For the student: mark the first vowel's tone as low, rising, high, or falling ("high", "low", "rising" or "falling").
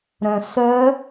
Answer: low